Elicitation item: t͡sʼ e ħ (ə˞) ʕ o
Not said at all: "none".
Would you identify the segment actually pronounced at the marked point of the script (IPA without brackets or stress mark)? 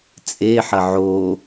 ɐ